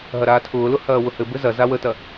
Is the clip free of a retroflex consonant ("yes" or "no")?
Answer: yes